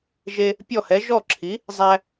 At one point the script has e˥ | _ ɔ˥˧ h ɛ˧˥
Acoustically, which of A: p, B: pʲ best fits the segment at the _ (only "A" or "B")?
B